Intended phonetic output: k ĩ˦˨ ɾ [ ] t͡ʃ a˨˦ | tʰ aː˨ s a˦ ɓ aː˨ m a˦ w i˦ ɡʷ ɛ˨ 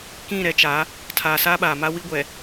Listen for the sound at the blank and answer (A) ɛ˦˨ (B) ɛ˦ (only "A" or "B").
B